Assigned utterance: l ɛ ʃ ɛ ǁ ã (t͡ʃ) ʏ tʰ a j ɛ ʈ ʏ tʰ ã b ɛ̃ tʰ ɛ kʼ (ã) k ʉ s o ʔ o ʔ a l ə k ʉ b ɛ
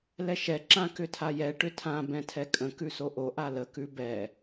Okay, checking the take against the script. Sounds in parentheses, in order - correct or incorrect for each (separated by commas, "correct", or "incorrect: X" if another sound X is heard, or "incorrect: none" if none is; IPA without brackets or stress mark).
incorrect: k, incorrect: ə̃